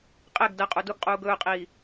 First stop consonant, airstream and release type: ejective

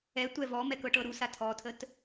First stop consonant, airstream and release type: plain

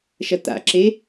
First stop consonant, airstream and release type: plain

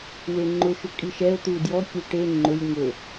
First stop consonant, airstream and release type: click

